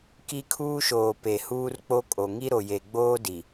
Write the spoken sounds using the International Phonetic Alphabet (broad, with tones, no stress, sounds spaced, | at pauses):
k i˦ kʰ uː˦ ʃ oː˨ p e˨ h uː˦ r k͡p o˦ kʼ o˨ ŋ i˦ ɾ o˨ j e˨ ɡ͡b oː˦ d i˨